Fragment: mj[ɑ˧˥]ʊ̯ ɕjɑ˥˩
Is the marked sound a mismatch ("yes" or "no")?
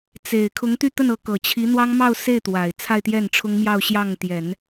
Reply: yes